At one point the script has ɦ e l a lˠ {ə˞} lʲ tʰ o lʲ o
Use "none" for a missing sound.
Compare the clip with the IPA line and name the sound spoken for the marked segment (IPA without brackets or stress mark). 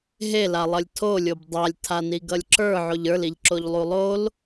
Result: ʌ